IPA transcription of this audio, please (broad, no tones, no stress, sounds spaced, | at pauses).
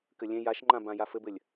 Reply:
k ɘ lʲ ẽ j a ʃ ŋ͡ǃ ã b ã j a f ɘ b ɘ lʲ